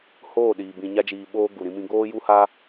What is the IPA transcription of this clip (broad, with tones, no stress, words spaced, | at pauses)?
hoː˦˨ ɗiː˨ bĩ˨ɲa˧d͡ʒiː˨ ɓoː˧ ɡu˨ɾĩ˧mĩ˧ ɡoː˦ju˦ ha˦